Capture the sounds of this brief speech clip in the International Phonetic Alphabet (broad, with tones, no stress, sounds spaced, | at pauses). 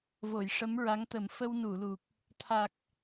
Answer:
v o˨˩˨ j ʂ ə˧˥ m ɹ a˧˥ ŋ t̪ ə˨˩˦ m f ə˧ w n u˨˩˨ l u˨˩ k̚ | t̪ʰ a˨˩ k̚